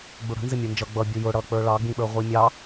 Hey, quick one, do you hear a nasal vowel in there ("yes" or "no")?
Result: yes